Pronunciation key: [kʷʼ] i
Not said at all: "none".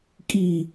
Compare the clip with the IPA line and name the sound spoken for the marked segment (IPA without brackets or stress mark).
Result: kʼ